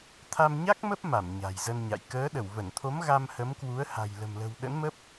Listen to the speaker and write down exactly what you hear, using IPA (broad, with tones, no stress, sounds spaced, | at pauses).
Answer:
t̪ʰ a˧ m ɲ a˦˥ k̚ m ə˦˥ p̚ m a˧˩ m ɲ a̤˨˩ j z ə˧ n ɲ a̰˧˨ j k əː˨˦ ɗ ə˧˩ w v ə˧˩ n t̪ʰ o˨˦ m ɣ a˧ m h ə˨˦ m k w u˨˦ ə̯ h a̤˨˩ j l ə̤˨˩ m l ə̤˨˩ w ɗ ə̰˧˥ n m ə˦˥ p̚